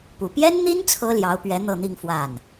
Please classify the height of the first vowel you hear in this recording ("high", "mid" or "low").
high